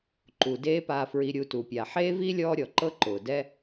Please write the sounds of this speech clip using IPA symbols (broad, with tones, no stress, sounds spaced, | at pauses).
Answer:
ǃ u˩ d eː˦ p aː˨ f ɹ i˨ ɾʲ u˨ t u˩ pʲ a˩ ħ eː˥ v i˥ lʲ ɔː˦ ɾʲ ɔ˩ ǃ ɤ˦ ǃ ʊː˩ d ɛ˦